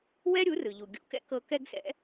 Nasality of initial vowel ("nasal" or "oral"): oral